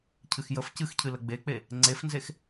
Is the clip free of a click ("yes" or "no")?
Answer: no